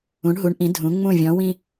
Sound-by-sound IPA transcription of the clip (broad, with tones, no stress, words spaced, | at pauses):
ũ˩˧ɳɦu˩˧ɳʔĩ˩˧ dʱũ˩˧ ŋ͡mũ˧˩vʲɔ̃˩˧wĩ˧